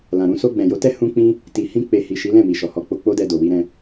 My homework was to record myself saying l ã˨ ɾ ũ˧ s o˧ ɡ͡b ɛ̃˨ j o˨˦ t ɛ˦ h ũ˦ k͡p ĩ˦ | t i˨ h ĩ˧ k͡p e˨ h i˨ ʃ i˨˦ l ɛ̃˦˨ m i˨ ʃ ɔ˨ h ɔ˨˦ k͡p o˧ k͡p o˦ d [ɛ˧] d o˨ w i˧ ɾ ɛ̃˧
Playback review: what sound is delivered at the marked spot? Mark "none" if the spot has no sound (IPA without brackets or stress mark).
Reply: ɛ˧